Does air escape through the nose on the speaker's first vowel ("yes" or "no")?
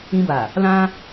yes